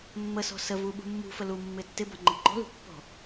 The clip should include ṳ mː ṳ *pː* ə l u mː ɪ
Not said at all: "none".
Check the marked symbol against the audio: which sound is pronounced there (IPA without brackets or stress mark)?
f